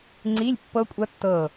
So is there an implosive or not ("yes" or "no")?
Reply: no